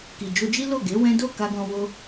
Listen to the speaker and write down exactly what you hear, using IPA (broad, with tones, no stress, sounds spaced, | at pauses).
k i˨ d͡ʒ o˧ d͡ʒ i˦ l o˦˨ ɡ e˨˦ w ɛ̃˦ d o˦˨ k a˧ ɡ ɔ̃˧ w o˧